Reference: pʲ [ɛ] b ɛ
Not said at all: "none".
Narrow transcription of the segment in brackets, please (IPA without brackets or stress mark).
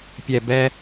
ɛ